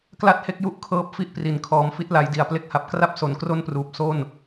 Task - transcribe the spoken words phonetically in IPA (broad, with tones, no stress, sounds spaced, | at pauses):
k l a˥˩ t̚ h e˥˩ k̚ j u˥˩ ʔ kʰ ɤː˦˥ p̚ f i˥˩ ʔ p r i˨˩ n kʰ ɔː˨˩ m f i˦˥ t̚ l a˩˦ j d i˨˩ a̯ p l e˦˥ k̚ h a˨˩ p̚ k r a˥˩ p̚ s o˩˦ n k r o˥˩ n p r uː˨˩ p̚ s o˥˩ n